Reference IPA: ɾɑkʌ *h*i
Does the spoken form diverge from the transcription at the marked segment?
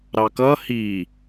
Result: no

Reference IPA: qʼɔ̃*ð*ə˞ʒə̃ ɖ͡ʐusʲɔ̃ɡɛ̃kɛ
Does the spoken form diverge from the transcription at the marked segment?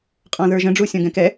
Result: no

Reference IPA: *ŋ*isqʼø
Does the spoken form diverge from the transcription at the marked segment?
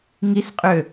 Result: no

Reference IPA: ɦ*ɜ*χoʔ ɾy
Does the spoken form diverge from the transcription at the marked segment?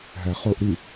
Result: yes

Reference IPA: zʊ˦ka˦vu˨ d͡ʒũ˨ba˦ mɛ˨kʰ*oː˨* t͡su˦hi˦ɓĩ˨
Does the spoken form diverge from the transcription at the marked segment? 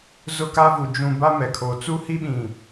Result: no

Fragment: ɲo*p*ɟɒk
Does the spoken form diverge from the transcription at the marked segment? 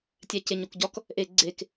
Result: yes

